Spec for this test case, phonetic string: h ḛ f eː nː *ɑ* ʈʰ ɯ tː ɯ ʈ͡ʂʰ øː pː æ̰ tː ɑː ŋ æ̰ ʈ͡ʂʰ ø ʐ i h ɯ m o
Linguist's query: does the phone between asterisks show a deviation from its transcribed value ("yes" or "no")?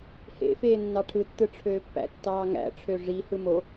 no